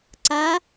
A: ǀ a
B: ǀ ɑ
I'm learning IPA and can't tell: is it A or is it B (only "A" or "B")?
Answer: A